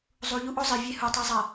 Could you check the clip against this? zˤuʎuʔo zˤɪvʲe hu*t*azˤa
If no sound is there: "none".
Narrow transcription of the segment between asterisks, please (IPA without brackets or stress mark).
tˤ